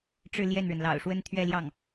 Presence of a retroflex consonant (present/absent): present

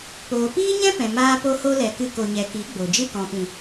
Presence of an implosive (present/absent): absent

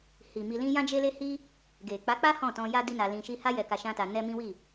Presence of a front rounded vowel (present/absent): absent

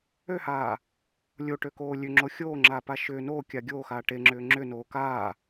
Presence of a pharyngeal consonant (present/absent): absent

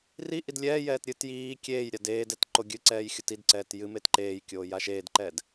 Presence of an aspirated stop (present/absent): absent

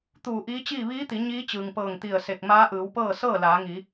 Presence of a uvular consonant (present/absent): absent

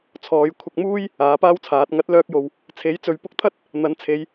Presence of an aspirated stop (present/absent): present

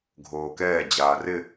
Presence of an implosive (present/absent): absent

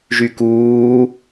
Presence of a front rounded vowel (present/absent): present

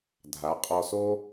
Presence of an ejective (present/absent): present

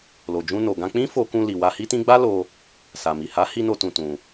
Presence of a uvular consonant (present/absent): absent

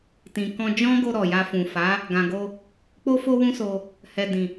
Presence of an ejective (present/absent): absent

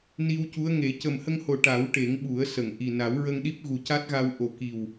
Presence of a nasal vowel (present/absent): absent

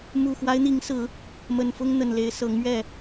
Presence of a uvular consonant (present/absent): absent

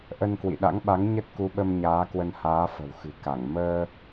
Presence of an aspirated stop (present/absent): absent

